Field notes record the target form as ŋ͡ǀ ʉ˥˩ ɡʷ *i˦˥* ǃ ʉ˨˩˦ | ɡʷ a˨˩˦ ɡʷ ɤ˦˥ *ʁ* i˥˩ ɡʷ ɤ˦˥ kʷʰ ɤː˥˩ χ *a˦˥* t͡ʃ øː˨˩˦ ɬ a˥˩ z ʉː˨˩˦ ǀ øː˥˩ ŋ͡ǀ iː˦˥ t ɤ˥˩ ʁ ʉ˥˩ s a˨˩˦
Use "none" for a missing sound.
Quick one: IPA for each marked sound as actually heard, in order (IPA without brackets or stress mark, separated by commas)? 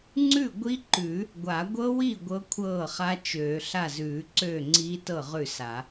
i˦˥, w, a˦˥